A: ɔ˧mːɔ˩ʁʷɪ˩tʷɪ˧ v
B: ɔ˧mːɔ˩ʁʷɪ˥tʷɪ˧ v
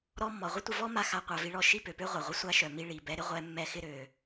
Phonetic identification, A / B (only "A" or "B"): B